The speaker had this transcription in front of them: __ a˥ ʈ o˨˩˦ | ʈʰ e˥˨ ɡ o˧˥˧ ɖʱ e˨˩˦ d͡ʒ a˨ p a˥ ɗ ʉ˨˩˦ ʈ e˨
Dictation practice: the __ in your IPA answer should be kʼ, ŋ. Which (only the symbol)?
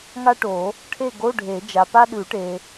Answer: ŋ